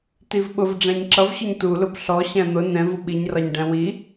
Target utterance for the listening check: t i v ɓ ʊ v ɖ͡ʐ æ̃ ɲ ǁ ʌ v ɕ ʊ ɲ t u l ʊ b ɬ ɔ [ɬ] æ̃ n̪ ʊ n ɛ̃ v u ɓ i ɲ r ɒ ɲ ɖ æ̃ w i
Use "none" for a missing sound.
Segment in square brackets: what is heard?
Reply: ɕ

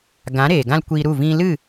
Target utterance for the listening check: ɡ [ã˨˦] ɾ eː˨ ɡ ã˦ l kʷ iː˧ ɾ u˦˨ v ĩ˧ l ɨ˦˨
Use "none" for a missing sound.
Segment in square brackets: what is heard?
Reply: ã˨˦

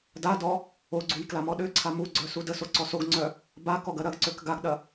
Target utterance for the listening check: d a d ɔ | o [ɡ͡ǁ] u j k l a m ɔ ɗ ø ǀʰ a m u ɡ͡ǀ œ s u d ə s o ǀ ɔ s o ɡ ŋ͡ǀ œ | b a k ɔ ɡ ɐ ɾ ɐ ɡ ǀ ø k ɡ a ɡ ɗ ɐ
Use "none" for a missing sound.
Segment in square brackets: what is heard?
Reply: ɡ͡ǀ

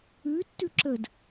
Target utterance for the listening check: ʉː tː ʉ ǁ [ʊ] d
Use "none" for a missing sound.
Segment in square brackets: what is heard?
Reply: ə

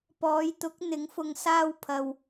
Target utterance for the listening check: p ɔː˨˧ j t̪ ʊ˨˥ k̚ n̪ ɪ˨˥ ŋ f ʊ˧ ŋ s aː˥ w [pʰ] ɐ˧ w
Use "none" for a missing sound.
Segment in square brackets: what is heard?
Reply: pʰ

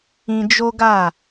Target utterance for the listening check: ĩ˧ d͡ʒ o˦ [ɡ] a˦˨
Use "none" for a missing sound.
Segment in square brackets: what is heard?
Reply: ɡ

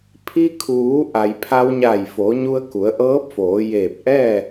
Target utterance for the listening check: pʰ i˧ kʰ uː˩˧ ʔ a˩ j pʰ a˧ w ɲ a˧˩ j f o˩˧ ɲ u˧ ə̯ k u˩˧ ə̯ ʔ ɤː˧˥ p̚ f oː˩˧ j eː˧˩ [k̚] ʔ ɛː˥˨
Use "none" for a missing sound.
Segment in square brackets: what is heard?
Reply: p̚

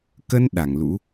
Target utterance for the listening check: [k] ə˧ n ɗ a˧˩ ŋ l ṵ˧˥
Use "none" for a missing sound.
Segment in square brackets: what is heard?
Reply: k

